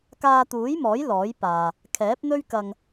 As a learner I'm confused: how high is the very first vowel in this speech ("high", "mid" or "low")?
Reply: low